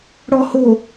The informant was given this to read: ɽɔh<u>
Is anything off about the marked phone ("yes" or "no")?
yes